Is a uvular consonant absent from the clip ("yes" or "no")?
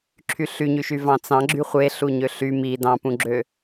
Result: no